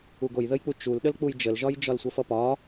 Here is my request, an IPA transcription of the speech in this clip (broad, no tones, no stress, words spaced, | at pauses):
uɡojðəjk͡pu t͡ʃulɗəl k͡pujd͡ʒəlʒɒj d͡ʒɒlsʷəfʌpɒ